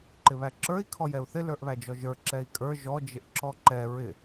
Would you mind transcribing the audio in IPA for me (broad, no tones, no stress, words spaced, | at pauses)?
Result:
ǃɪβæǁə˞i̯ kʰɔjɛu̯θɪ lə˞ʔβæd͡ʒɔʒə˞ ǁɛi̯kʼə˞ ʒɔ d͡ʒɪʔǁɔǃɛ ɹɪ